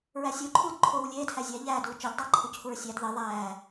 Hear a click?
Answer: yes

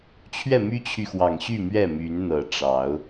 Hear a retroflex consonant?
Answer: yes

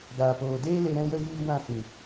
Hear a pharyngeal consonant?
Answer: no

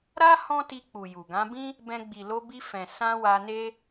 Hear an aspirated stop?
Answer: no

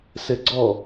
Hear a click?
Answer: yes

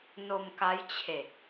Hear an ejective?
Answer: no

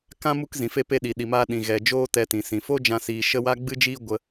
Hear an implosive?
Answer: yes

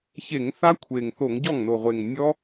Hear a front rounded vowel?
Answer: no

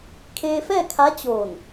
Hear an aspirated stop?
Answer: yes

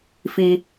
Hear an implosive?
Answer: no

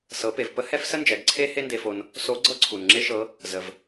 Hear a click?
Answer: yes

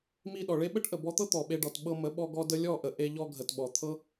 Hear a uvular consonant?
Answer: no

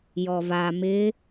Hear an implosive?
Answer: no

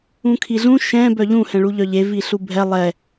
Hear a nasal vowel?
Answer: yes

